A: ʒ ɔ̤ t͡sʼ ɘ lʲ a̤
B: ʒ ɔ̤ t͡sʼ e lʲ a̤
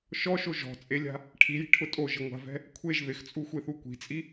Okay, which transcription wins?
B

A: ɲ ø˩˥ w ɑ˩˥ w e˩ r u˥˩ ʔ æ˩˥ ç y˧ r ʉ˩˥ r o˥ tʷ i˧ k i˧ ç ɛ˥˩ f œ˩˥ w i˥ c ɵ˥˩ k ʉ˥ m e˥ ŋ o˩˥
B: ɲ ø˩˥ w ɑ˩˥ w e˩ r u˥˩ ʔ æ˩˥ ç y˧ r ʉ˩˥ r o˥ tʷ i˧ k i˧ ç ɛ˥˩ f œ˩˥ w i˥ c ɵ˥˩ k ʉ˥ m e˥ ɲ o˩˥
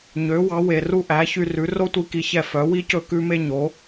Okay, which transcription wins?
B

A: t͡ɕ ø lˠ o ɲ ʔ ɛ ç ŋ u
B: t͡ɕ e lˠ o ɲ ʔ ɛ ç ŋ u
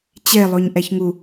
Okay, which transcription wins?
B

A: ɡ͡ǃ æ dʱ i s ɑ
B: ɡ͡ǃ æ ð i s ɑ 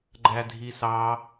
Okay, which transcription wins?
A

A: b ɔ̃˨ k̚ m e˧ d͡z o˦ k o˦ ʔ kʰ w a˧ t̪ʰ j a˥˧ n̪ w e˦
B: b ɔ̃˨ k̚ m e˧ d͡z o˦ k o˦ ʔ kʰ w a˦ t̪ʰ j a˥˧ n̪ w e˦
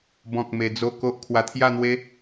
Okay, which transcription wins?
A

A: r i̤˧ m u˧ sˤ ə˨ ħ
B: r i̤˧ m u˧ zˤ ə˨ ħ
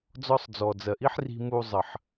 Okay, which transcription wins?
B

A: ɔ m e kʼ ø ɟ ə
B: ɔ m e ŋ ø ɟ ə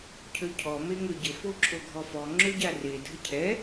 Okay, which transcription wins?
B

